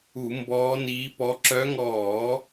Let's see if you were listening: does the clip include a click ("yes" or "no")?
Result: yes